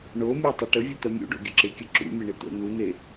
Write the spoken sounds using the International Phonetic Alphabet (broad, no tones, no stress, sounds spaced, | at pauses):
ɳ o mʲ ɛ tˤ ɐ ʈ ə vʲ ʊ t̪ ɐ mʲ ṵ ɖ o̰ ɡʲ ʊ ǁ ɪ kʲ ə ǁ ṵ mʲ ə ɳ ɪ t̪ o̰ n̪ u n̪ e